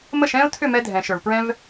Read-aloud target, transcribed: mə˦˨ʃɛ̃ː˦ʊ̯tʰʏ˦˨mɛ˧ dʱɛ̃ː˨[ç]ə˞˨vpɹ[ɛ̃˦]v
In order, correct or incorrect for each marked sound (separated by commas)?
incorrect, correct